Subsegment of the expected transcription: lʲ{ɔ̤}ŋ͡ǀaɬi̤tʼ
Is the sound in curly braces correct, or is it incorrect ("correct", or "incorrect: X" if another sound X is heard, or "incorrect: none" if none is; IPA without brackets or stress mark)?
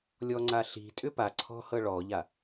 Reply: incorrect: ɔ